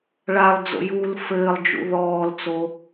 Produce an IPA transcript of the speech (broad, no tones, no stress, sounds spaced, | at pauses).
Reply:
ɭ a lˠ d͡z o̰ j uː l f ɘː lˠ d͡ʒ ṵ ð ɔː l t͡s o